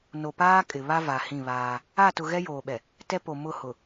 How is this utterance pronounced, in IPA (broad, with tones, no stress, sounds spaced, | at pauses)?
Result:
n o˨ p aː˦ kʼ ɪ˨ β a˦ v a˨ h ĩ˦˨ β aː˦ | a˦˨ t ʊ˨ ɣ ɛ˦ j oː˨ ɓ ɛ˨ | t ɛ˦ p o˨ m ʊ˦˨ h ʊ˨